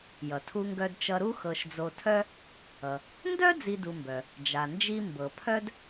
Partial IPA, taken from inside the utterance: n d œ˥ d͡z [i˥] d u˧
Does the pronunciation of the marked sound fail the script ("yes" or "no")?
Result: no